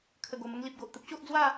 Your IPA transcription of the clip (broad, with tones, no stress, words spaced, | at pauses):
kʰə˨˩ɡo˨˩mə˧ŋli˨p̚ ɡo˨ʔt̪ə˦p̚ɕo˦ʔd͡zwa˥˧